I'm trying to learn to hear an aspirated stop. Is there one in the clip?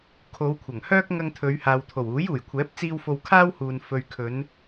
yes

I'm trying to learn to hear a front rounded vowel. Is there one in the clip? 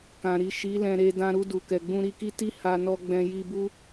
no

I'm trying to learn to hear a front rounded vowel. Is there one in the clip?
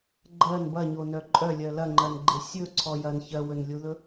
yes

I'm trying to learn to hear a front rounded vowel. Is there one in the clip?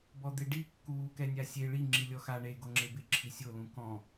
no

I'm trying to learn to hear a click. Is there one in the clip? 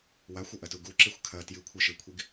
yes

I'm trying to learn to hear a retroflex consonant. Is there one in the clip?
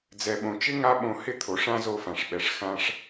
yes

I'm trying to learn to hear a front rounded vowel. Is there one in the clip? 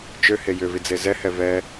yes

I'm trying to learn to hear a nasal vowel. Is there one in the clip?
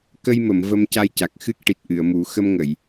no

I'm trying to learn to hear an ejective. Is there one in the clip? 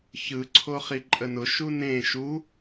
yes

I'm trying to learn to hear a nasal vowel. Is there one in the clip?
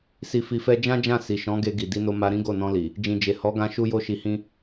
yes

